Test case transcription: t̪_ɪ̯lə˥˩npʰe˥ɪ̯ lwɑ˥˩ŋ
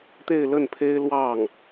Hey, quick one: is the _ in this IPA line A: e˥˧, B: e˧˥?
A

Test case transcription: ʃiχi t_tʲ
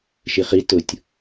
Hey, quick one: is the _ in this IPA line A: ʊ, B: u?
A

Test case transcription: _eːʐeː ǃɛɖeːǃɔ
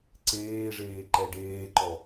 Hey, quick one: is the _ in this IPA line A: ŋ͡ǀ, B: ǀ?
B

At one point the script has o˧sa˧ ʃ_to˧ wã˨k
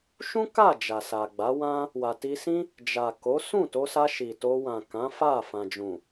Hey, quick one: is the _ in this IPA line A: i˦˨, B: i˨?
B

